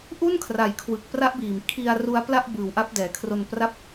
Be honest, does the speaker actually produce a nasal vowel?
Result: no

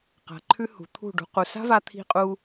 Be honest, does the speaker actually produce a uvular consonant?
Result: yes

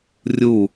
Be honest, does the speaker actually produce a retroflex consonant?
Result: no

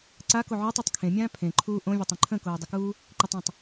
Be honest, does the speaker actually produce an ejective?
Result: no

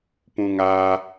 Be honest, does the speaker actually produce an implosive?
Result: no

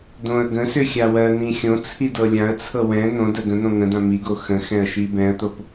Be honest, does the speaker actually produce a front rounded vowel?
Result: yes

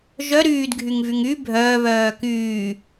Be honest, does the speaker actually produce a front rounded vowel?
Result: yes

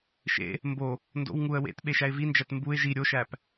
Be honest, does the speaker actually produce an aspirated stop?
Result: no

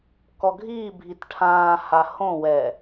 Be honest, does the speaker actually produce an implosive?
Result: no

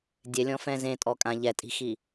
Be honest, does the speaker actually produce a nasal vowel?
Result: yes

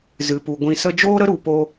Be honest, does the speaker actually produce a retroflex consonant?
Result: no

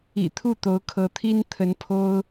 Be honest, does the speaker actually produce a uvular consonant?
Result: no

